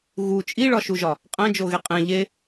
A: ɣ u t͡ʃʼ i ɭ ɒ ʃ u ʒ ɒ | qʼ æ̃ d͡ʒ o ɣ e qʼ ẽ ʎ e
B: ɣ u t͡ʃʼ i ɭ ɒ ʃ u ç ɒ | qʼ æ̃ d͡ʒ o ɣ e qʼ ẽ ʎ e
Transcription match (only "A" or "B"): A